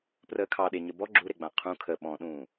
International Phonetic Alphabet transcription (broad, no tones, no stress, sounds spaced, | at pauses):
p r əː kʰ ɑ ɗ e ɲ ə b ɔ ɡ͡ǁ u ɾ e ɡ͡b ã qʰ ũ kʰ ə ɓ ɔ̃ ɗ ũː